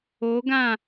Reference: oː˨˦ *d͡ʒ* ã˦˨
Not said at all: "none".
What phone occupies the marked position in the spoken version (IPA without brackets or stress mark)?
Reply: ɡ